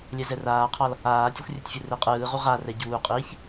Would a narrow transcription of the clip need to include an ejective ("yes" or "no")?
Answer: yes